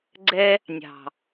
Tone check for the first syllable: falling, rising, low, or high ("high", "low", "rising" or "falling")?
high